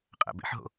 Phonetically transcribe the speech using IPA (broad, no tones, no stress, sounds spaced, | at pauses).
qʼ æ̰ b ḛ ħ ɦ o̰